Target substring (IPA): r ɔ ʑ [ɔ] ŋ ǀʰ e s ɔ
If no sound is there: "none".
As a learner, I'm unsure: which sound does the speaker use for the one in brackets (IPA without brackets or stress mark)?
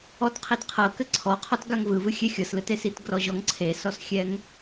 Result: ɔ